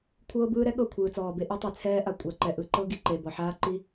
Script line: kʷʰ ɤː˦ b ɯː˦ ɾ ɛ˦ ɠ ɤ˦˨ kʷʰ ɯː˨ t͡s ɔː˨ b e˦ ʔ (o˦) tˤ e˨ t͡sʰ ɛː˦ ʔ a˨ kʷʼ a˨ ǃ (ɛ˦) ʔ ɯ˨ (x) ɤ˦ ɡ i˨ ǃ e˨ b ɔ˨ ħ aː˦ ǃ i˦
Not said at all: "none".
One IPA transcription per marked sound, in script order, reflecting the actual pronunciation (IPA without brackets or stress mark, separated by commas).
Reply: o˦, ɛ˨, ǃ